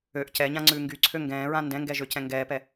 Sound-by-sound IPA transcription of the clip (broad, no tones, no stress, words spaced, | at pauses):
øʔ cɛɲãŋ͡ǀʉː ŋɡyǀʰø ŋɡɛ̃ːɹã ndɛ̃ŋɡɛʒøcɛ̃ ŋɡɛːpɛ